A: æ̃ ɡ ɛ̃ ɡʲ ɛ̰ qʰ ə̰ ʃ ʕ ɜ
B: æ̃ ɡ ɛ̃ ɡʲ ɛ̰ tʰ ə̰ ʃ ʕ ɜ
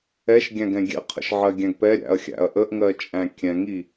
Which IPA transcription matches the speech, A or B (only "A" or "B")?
A